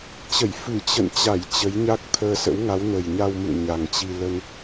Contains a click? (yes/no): no